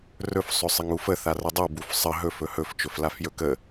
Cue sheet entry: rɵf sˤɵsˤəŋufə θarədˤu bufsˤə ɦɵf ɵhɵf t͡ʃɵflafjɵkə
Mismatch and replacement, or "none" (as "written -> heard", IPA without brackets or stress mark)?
none